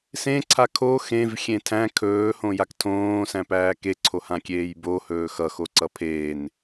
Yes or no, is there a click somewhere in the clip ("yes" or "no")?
yes